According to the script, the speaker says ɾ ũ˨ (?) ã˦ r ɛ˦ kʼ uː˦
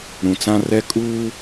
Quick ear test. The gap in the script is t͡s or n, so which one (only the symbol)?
t͡s